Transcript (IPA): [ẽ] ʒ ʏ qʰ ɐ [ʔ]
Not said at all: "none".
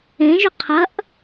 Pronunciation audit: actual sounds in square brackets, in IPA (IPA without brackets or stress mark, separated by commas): ẽ, ʔ